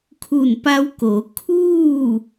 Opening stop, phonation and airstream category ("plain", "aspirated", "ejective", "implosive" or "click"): aspirated